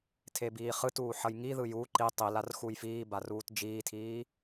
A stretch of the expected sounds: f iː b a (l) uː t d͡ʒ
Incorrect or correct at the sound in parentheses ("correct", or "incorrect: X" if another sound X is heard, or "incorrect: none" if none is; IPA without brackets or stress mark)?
incorrect: r